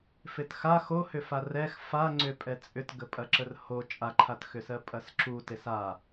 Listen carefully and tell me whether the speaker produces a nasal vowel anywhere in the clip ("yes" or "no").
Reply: no